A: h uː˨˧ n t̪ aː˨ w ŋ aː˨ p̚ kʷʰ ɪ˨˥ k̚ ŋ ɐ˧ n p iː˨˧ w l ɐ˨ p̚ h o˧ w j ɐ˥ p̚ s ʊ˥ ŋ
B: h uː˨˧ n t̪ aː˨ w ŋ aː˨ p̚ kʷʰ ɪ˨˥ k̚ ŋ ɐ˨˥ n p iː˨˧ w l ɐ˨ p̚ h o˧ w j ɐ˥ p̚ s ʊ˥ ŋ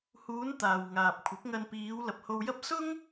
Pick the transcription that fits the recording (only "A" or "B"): A